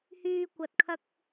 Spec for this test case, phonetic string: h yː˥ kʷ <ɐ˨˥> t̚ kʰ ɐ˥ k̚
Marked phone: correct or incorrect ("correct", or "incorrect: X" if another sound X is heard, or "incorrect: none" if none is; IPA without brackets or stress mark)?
incorrect: ɐ˧